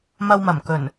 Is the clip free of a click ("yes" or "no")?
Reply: yes